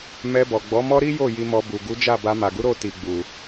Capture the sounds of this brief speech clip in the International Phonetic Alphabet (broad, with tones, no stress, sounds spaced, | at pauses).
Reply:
m ɛ˧ b ɔ˨ ɡ͡b ɔ˨˦ m ɔ˦ ɾ i˦ j o˦˨ j i˧ m ɔ˧ b u˨ ɡ u˨˦ d͡ʒ a˦˨ b a˧ m a˨ ɡ u˨˦ ɾ o˦˨ t i˨ ɡ͡b u˨